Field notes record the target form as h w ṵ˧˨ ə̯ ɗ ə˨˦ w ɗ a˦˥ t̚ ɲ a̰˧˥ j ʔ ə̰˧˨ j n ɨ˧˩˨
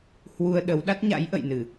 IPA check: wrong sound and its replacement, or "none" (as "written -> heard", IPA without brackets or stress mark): ṵ˧˨ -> u˧